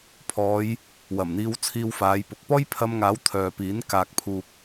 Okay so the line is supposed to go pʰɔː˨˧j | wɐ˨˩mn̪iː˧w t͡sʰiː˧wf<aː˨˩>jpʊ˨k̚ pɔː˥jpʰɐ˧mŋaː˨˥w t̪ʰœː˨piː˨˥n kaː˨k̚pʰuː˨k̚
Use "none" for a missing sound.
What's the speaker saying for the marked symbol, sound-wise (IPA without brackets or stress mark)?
aː˨˧